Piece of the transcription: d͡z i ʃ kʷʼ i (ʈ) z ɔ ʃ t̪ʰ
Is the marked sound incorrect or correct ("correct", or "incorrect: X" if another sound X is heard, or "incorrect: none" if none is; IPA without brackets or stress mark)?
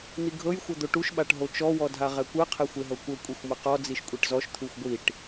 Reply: correct